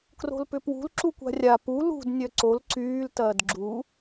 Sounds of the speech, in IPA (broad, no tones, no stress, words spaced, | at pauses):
kro̤lpʏpwṳl ǁukʷa̤rʲa pu lṳd nʲœǀol ǀyːltɐːd ɡ͡ǁu